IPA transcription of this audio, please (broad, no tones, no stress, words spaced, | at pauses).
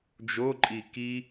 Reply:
d͡ʒoǃʼi ki